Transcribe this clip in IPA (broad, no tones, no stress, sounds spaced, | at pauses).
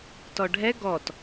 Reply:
t ɔ ɖʱ ɛ ɡ ɔ t